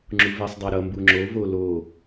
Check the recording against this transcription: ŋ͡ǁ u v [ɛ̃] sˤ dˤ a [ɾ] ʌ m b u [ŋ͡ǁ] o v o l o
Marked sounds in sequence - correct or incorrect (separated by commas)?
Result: incorrect, correct, correct